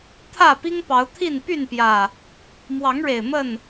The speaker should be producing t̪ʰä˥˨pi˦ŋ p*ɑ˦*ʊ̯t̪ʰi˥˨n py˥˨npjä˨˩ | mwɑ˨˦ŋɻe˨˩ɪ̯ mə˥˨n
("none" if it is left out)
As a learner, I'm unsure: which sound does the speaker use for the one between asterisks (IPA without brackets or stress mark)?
ɑ˨˦